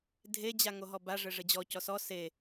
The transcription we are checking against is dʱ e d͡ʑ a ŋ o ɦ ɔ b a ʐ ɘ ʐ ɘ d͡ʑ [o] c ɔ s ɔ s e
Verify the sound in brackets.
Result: incorrect: ɔ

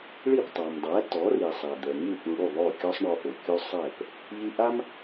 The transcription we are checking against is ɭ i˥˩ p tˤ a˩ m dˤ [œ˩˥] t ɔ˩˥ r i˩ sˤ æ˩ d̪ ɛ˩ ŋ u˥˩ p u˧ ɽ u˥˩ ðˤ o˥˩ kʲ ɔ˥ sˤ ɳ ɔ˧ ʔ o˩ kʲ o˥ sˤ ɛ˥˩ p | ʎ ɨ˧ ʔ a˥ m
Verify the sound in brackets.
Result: incorrect: æ˩˥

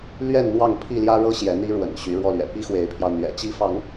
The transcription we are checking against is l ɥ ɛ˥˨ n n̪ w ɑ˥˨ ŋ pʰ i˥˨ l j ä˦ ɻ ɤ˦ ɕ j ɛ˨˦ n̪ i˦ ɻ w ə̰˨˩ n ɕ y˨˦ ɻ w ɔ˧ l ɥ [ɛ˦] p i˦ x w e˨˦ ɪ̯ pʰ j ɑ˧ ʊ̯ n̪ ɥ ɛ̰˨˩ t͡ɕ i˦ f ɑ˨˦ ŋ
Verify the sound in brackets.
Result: incorrect: ɛ̰˨˩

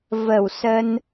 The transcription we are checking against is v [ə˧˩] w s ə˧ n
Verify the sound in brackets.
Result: correct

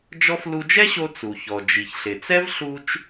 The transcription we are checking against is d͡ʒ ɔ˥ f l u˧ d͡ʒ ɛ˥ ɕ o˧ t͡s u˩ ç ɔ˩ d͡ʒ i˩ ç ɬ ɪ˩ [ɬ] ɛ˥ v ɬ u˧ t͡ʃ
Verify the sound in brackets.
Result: incorrect: t͡s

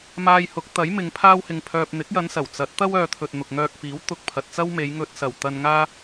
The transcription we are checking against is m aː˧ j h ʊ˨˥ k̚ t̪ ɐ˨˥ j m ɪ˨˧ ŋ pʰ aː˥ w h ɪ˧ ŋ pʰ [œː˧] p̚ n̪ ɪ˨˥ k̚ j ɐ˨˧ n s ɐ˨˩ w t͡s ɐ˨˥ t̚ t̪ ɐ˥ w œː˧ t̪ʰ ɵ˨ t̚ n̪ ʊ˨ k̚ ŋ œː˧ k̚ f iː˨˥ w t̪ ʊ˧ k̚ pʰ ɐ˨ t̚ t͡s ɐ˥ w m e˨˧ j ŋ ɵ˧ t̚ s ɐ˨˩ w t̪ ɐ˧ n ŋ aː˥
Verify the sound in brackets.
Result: correct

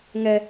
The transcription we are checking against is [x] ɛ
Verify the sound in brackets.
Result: incorrect: ŋ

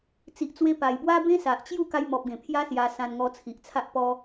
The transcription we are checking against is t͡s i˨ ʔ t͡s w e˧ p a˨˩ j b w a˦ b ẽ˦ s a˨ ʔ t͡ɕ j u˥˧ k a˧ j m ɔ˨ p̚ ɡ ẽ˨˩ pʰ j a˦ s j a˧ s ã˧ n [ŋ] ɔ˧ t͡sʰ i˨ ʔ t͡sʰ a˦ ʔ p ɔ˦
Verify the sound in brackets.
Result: correct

